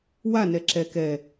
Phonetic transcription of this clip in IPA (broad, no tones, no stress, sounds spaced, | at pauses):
w a n ɛ ǁ ɛ k ɛ